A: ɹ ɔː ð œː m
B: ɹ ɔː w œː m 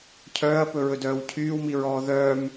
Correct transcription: A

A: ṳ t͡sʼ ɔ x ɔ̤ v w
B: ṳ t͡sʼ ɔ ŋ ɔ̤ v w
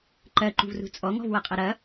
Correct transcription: B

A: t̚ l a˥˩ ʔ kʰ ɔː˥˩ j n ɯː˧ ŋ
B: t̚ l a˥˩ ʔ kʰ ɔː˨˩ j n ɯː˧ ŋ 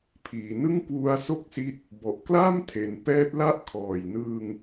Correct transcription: B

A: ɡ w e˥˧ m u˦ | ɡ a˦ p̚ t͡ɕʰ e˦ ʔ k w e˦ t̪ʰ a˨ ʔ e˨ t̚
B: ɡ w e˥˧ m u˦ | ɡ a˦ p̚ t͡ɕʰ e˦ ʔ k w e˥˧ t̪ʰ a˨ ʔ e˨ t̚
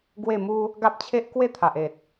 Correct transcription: B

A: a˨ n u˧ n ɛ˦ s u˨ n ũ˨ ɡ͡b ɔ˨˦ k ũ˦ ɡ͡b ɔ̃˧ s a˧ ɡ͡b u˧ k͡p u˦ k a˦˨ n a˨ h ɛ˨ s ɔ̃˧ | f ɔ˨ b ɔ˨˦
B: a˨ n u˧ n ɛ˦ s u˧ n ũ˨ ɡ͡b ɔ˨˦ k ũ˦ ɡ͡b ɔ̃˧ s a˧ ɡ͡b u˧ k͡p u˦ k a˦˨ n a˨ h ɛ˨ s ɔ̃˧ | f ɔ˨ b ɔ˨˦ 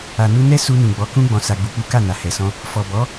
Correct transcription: B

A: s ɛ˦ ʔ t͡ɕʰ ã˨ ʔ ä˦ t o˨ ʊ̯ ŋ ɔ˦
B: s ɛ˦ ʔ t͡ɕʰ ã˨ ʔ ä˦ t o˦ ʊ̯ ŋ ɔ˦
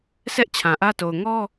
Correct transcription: A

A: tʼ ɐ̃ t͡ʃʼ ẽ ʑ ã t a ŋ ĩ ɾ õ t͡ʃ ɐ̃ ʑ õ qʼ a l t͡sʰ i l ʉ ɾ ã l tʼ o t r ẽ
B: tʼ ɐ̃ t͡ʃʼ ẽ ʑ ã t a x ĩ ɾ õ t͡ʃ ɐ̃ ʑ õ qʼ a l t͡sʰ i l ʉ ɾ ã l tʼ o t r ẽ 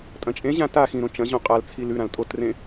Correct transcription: B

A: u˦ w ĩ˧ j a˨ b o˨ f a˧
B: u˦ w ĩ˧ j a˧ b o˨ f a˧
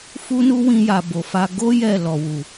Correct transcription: A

